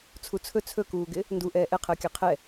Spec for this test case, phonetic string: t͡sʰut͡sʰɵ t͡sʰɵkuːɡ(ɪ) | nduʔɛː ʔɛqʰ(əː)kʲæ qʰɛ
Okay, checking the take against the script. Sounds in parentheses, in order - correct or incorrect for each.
correct, correct

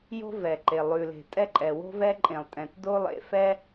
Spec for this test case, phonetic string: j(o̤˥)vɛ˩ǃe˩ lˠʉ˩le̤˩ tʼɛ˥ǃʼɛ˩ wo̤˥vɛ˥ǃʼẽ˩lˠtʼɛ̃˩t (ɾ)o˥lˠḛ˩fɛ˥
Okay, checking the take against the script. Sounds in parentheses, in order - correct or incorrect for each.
correct, incorrect

